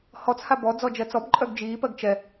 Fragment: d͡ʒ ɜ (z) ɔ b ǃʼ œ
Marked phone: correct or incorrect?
incorrect: t͡s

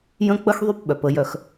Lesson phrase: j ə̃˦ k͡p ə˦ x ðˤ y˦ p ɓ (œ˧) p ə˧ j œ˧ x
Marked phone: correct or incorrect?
incorrect: œ˨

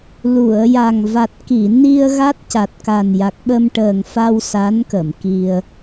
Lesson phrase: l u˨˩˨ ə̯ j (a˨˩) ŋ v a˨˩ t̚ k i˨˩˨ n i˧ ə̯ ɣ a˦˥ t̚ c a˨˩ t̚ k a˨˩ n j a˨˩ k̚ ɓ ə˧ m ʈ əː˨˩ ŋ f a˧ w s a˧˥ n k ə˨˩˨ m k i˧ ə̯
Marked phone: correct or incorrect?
correct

